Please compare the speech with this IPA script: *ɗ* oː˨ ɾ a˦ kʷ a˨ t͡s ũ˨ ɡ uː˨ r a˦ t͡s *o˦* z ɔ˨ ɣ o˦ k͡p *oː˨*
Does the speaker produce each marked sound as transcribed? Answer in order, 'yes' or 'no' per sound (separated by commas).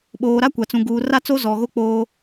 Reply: no, yes, no